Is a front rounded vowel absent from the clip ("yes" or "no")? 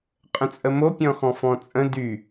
no